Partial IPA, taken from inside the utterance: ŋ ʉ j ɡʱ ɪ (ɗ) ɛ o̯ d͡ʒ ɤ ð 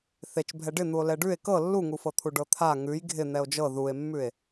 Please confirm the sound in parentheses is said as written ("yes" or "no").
no